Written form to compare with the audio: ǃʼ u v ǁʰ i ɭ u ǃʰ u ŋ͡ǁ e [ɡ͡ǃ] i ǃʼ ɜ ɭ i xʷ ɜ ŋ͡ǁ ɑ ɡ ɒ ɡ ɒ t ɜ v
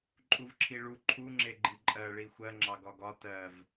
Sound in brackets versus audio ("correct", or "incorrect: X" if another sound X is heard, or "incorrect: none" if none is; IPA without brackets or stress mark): correct